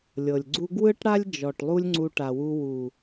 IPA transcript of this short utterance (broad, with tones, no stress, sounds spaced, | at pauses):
lʲ ɤ˨ lʲ ɡ͡ǀ u˦ ɡ w ɯ˦ ʈ ɽ a˦ lʲ d͡ʒ ɔ˨ ʈ lˠ u˦ lʲ ŋ͡ǀ u˧ ʈ a˨ w u˧ w u˨